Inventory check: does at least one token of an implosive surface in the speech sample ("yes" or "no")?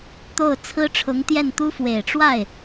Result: no